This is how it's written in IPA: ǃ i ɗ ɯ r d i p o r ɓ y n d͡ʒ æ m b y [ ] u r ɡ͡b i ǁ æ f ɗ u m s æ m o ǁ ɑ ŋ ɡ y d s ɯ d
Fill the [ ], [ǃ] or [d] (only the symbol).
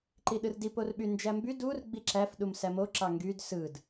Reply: d